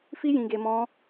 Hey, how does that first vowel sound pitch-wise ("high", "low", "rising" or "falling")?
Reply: high